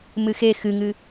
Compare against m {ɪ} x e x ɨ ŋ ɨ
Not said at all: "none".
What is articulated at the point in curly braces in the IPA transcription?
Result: ɨ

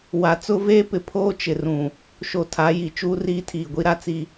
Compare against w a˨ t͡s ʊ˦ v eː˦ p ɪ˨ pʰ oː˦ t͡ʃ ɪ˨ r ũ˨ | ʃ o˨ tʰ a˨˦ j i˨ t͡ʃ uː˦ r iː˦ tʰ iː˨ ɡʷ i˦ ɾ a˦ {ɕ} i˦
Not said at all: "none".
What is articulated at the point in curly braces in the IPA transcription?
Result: t͡s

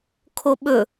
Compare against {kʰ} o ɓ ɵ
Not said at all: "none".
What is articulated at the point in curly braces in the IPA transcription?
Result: kʰ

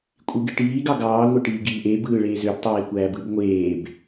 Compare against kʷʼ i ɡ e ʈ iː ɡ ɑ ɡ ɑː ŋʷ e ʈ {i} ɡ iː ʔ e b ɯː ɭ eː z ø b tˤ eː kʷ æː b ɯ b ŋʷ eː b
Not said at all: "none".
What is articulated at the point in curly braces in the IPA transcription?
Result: iː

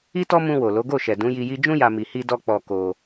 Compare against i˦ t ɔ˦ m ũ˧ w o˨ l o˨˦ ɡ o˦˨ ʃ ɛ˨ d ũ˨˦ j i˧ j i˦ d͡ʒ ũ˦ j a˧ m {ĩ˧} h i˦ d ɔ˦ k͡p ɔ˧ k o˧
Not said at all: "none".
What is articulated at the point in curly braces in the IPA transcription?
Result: i˧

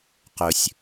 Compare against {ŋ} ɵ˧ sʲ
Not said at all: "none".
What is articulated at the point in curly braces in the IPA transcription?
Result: q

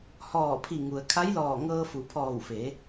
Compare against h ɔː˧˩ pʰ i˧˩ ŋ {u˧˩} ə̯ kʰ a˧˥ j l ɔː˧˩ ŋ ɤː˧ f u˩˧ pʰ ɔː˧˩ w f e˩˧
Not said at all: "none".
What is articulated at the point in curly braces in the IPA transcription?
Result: u˩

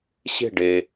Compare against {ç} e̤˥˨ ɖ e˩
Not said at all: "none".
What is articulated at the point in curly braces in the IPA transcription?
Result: ɕ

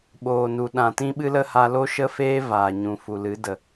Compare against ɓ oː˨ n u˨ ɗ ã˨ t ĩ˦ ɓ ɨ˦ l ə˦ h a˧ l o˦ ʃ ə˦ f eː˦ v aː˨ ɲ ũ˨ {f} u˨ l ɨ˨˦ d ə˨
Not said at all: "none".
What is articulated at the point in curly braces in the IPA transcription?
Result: f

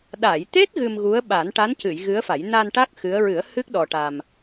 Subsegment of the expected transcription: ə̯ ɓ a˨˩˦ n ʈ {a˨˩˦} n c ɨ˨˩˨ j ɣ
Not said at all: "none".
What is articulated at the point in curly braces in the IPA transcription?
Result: a˧˥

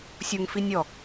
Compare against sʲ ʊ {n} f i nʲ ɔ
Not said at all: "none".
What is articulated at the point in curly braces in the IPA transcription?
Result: ŋ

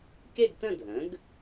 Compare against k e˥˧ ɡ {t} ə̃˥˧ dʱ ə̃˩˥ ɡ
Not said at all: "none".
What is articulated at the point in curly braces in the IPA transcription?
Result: t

